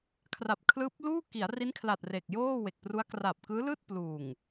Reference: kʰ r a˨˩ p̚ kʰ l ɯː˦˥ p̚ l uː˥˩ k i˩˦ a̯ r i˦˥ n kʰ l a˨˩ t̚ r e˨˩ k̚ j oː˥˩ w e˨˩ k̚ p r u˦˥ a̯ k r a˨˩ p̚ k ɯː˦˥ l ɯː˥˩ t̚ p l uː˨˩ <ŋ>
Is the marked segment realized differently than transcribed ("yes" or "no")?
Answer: no